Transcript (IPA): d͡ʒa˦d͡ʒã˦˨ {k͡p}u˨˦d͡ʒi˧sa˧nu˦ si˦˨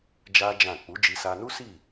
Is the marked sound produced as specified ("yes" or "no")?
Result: yes